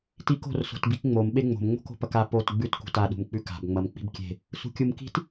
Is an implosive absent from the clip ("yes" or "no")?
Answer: no